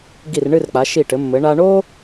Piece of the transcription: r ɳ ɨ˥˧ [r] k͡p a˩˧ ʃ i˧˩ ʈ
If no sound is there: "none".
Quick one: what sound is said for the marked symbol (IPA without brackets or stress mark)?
r